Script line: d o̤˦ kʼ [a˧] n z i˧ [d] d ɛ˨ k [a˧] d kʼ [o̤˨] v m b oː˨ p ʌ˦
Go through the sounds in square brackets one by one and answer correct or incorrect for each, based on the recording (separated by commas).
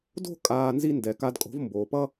incorrect, incorrect, correct, incorrect